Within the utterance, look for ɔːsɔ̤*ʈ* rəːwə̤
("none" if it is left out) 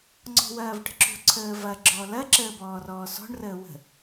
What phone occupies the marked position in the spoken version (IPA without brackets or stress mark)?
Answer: ɳ